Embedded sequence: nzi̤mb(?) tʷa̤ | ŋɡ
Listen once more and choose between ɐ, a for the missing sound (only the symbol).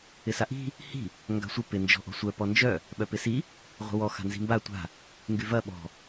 a